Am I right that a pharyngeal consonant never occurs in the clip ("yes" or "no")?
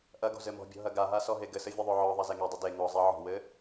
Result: no